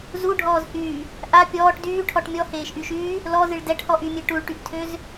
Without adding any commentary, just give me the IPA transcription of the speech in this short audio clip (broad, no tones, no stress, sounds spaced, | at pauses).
z u ɖʱ ɔː z h yː | ʔ a pʲ ɔː ʈ d yː ʈʰ ɔ ʈ mʲ ɔ h eː ʃ ʔ y ʃ yː | l ɔ z ɨ ɭ d ɛ ʈ h ɔ ʔ y mʲ e ʈ u ɭ ʈ y ʔ tʰ ø z